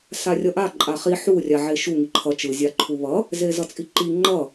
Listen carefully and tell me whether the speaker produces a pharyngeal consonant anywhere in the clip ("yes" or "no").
yes